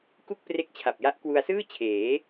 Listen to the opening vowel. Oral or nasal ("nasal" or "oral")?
oral